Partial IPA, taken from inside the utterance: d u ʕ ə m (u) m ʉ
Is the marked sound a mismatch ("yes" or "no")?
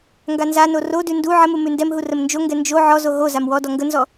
no